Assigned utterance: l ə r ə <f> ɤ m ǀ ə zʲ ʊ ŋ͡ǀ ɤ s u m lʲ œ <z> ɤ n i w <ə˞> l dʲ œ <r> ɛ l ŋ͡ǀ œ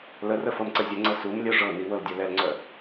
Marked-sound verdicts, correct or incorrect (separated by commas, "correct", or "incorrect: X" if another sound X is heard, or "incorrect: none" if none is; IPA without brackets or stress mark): correct, incorrect: ʐ, incorrect: ɤ, incorrect: l